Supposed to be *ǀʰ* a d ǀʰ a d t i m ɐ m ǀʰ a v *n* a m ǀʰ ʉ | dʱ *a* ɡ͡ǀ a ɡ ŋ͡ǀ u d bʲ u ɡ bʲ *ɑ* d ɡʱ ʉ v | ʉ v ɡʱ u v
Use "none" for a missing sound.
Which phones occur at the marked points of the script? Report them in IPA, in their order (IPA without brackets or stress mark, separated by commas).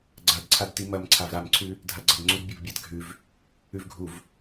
ɡ͡ǀ, ɾ, a, a